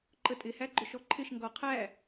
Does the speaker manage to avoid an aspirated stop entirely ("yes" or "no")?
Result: no